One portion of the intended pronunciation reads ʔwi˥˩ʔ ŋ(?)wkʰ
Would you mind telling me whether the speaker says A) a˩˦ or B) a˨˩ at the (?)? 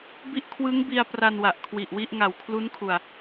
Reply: B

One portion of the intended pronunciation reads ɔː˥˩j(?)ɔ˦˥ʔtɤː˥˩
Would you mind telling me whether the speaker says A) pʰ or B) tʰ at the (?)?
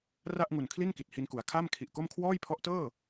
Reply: A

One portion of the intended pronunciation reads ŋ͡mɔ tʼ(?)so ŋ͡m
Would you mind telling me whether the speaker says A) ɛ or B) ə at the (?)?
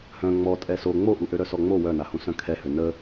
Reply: A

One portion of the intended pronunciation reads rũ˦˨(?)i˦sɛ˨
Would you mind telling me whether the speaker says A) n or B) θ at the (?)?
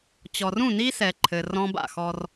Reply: A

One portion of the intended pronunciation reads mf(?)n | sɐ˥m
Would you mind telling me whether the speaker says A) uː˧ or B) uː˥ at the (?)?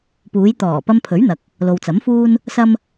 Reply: B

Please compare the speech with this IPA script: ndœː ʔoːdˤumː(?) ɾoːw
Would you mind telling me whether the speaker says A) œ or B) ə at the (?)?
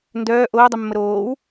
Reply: B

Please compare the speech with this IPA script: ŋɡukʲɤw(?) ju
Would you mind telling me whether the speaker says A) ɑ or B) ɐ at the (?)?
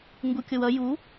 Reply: B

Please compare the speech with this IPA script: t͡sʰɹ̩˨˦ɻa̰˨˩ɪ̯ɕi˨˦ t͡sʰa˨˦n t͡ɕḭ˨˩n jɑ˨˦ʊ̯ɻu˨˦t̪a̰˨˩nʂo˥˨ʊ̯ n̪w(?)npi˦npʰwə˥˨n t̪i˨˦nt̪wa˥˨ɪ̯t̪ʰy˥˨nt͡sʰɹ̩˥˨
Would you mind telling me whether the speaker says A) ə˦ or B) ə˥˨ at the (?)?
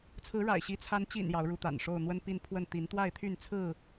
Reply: A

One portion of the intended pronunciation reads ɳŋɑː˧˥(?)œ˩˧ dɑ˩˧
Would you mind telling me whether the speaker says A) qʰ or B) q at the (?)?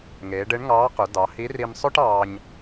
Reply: B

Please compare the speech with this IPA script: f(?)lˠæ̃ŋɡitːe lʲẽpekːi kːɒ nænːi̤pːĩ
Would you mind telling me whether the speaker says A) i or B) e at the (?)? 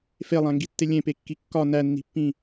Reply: B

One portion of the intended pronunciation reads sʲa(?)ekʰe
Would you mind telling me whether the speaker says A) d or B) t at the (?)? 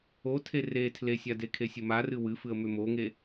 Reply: A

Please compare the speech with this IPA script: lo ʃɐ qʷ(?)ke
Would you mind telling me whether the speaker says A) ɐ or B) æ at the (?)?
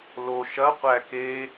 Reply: B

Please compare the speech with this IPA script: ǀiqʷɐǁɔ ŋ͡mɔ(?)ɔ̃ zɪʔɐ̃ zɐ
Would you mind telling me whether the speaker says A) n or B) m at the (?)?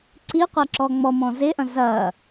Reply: B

